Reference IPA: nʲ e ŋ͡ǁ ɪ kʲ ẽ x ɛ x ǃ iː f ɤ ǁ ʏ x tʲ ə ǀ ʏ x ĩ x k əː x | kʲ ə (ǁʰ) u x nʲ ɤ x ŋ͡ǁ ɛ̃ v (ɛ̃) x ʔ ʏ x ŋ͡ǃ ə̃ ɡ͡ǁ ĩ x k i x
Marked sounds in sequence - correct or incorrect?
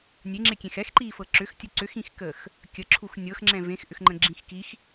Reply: correct, incorrect: ẽ

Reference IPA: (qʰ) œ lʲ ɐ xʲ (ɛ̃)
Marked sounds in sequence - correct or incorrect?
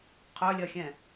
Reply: correct, correct

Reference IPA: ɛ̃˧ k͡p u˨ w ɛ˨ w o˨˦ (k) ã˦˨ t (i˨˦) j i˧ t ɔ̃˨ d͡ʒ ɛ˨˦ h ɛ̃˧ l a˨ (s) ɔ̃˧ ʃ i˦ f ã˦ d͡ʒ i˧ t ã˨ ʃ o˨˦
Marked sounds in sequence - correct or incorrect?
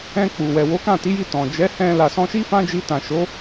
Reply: correct, correct, correct

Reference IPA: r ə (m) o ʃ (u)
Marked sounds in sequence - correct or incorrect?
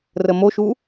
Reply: correct, correct

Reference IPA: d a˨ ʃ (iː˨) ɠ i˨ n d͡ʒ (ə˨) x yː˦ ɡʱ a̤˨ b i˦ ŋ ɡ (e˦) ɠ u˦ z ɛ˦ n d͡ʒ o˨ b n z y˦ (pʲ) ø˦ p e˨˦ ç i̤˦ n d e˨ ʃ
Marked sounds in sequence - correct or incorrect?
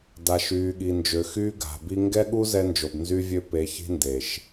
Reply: incorrect: yː˨, incorrect: ø˨, incorrect: ɛ˦, incorrect: vʲ

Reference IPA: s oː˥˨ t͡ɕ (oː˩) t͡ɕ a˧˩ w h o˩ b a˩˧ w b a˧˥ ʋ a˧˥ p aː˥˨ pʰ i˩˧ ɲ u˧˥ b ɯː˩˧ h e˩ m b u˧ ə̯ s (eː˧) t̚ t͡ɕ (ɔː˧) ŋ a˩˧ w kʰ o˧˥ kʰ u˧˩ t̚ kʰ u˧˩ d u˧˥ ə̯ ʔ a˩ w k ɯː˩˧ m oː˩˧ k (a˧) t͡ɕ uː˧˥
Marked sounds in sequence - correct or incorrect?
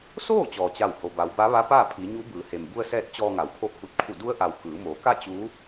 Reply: incorrect: ɔː˩, incorrect: ɛː˧, correct, incorrect: a˥˨

